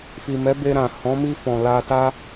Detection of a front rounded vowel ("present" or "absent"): absent